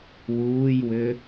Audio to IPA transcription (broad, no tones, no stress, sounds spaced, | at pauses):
w uː j w ʏ